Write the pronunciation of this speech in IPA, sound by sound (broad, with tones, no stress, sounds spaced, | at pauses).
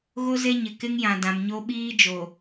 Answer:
ɣ o˦ z e˦ ɲ ɪ˨ k ɪ˦ ŋ j ã˨ d ã˨ m ɲ o˦ ɓ iː˦ d͡ʒ o˨